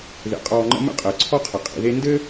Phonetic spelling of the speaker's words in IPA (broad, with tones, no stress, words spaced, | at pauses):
ðḛ˨˦qʼɔː˧ŋ͡ǃə̰˦ mə̰˦qʼəː˨ǀʰɔ˦qʰə˨ qʼḭ˨ðe˧ndɘ˦